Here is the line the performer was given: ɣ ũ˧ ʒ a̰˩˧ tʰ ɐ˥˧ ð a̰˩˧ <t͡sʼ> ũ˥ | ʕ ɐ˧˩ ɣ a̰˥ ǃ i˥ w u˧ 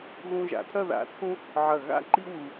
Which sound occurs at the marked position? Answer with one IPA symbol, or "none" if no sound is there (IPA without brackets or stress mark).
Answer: t͡sʰ